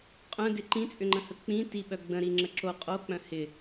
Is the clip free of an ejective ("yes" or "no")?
no